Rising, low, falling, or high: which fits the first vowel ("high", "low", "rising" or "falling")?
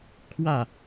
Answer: falling